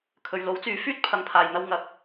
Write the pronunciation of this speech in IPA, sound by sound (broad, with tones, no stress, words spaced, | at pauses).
kʰɵ˨ɥlo˨˥wt͡syː˨˧ fyː˥t̚pʰɐ˨ŋ pʰaː˨jn̪ɐ˧w ŋɐ˨k̚